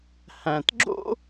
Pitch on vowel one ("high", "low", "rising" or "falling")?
low